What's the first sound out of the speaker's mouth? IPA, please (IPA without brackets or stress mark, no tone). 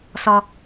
s